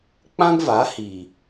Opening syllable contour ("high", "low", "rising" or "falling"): high